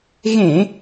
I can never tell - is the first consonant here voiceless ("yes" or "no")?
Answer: no